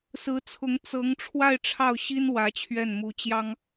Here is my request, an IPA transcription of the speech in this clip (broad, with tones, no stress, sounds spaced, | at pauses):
s ɹ̩˧˥ t͡sʰ ʊ˧˥ ŋ t͡s ɤ˧˥ ŋ ʈ͡ʂʰ w a˥˧ ɪ̯ ʈ͡ʂʰ ɑ˥˩ ʊ̯ ɕ i˥ n w ä˧˥ t͡ɕʰ ɥ ɛ˥˩ n m u˧˥ t͡ɕ j ɑ˥ ŋ